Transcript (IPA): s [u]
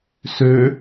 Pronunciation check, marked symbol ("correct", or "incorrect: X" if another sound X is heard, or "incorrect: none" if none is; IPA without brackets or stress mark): incorrect: ø